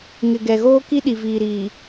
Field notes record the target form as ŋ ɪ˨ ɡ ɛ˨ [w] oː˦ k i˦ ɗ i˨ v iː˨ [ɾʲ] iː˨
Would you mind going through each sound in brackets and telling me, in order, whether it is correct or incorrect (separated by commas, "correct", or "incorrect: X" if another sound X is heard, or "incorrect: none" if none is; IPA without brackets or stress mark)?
incorrect: ɣ, incorrect: ɾ